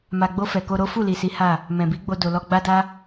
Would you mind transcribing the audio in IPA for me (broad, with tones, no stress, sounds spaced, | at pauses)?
m a˨ ɡ͡b o˧ f ɛ˨ k o˧ ɾ o˦ f u˦˨ l i˨ s i˨˦ h a˦˨ | m ɛ̃˨ b i˨˦ ɡ͡b o˧ d o˨ l ɔ˧ ɡ͡b a˦ d a˦